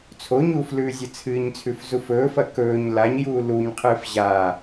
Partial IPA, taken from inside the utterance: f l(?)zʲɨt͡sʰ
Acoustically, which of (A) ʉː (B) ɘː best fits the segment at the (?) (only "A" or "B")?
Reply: A